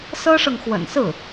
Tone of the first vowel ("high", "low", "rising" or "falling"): high